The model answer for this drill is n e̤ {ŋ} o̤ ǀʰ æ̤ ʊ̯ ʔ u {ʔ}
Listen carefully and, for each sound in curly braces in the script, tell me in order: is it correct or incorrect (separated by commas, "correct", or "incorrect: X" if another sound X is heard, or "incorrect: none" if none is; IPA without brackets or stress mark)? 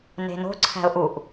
incorrect: n, correct